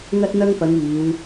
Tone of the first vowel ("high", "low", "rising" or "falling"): high